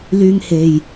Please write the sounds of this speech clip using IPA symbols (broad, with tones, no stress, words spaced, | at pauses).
lyː˧ŋ he˨j